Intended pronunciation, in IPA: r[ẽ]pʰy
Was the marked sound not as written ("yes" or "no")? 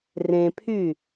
no